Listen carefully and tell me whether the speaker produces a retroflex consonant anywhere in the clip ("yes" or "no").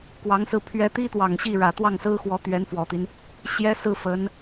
yes